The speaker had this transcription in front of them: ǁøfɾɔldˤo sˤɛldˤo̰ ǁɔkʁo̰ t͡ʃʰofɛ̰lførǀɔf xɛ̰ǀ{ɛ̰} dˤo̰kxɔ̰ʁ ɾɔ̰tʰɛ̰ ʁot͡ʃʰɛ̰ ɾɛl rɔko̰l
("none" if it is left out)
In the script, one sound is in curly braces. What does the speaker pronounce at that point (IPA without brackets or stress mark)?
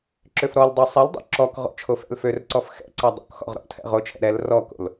ɛ